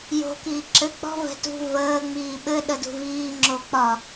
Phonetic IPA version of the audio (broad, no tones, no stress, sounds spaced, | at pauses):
j o̤ k iː ǁ ɘ k͡p ɔ̤ v ɛ̤ t ṳ v əː ŋ͡m iː ɓ ɘ ɗ ə d ṳ v iː ŋ͡ǁ o k͡p ɒ